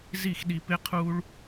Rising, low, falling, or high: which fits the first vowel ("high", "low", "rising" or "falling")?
falling